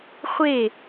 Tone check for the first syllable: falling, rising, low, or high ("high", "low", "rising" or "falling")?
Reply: falling